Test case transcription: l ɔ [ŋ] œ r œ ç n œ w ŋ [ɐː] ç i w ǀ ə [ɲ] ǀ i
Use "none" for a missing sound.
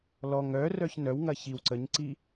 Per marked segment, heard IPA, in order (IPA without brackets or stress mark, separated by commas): ŋ, ɐ, ɲ